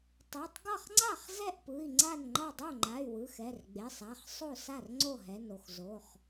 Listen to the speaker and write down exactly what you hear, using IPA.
tˤ e˩˧˩ tˤ ɡ ʌ˥˩ χ ŋ͡ǀ a˥˩ χ z ɛ˥˩ ʔ p ɯ˩˧˩ i̯ ŋ͡ǀ a˥˩ n ŋ͡ǃ ʌ˥˩ dˤ o˥˩ ŋ͡ǃ a˩˧˩ y̯ w ɯ˩˧˩ x ɛ˩˧˩ r ɡ͡b e˩˧˩ sˤ a˩˧˩ χ sˤ o˥˩ s a˥˩ r ŋ͡ǀ o˥˩ ɦ ɛ˩˧˩ n o˥˩ x z o˩˧˩ χ

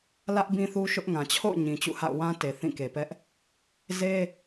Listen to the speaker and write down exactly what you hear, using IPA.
l ä˦ ʔ b ĩ˦ θ u˦ ʃ ʊ˦ ʔ ŋ ã˨ t͡ɕʰ o̰˦˨ ʊ̯ ɲ ĩ˨ t͡ɕ ṵ˦˨ h a̰˦˨ ʊ̯ w ã˦ t e˨ θ ĩ˦˨ k e˨ p ɛ˦ ʔ | z e˦

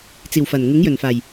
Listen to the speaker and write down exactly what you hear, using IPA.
t͡s iː˨˩ w f ɐ˨˩ n ŋ ɪ˨˥ ŋ j ɵ˨˩ n f aː˨˩ j

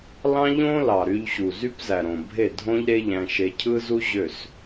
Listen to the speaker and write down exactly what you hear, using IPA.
l ɑ̃˦ ʎ õ˦ l ɑ˨ ɾ y˧ ʎ ɕ u˨ z y˦ p z æ˨ ɾ õ˨ bʱ e˦˨ dʱ õ˦ ʎ ɾ e˦ ʎ æ̃˧ ʃ e˧ cʰ ɯ˦ z u˦ ʑ ø˦˨ s

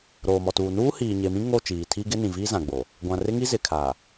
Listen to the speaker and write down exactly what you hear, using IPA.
ɾ oː˨ m ɔ˨ t uː˨ n uː˦ h iː˨ ɲ e˨ m ĩ˦ ŋ o˦˨ t͡ʃ iː˨ tʰ i˦ ɡ ɪ˦ n ĩ˨ v iː˦ z ã˨ ɡ͡b o˨ | ɡʷ ã˨ r ɪ˦ ŋ i˦ z ɪ˨ kʰ a˨

